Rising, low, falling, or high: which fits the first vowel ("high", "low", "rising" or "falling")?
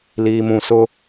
low